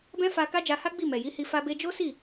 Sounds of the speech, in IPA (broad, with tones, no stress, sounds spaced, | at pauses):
b ɛ̃˦ f a˧ k a˦ d͡ʒ a˧ h a˦ ɡ͡b i˦˨ m ɛ˨ j i˨˦ h i˧ f a˧ b e˧ d͡ʒ o˦ s i˦˨